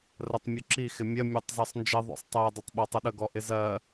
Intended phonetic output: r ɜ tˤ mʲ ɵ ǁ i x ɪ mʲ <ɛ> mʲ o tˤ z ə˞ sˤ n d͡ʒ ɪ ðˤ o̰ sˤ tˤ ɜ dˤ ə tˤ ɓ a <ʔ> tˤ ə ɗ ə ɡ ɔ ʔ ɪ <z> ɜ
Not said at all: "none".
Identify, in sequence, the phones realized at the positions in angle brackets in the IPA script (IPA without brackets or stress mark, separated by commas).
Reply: ɜ, none, z